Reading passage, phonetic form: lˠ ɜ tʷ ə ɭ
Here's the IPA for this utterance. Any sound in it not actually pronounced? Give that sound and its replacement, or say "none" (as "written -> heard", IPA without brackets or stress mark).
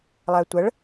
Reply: none